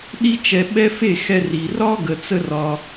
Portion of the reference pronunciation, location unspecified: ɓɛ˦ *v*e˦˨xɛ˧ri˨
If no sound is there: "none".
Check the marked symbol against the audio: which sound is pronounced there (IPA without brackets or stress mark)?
f